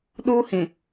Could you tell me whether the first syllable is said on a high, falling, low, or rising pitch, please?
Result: high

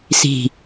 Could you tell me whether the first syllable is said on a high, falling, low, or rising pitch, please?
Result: falling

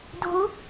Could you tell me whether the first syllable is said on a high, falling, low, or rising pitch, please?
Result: rising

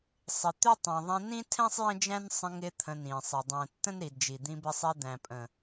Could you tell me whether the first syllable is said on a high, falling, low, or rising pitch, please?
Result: low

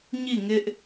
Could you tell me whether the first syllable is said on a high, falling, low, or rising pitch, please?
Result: falling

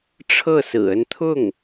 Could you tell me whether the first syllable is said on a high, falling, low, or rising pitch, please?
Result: falling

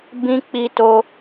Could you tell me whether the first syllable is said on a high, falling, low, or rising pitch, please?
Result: high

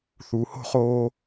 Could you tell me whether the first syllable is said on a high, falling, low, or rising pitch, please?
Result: low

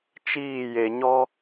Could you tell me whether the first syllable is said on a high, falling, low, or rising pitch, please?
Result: falling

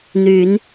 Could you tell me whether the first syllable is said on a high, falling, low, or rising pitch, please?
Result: rising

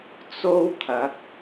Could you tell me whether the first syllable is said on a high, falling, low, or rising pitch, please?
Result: high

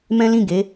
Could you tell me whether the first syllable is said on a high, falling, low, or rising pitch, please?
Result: high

